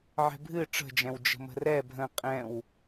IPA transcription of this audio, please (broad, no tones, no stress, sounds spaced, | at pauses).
ʕ ɛ̤ bʱ ɨ ʈ͡ʂ ə̤ d͡ʒ ɛ̃ w d͡ʒ ə̤ m ə̤ r ɛ bʱ ə̃ qʼ ɛ̃ w